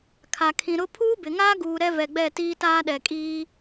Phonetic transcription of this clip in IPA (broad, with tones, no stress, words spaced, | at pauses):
kʰa˨kʰĩ˨ɾʊ˦ pʰuː˦bɪ˨ŋaː˦ɡuː˨ ɾɛ˦vɛ˨ɡ͡bɛ˦˨ tiː˦taː˦ɗɛ˨ kʼiː˦